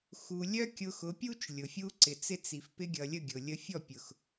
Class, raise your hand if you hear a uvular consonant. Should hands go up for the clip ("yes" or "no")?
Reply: no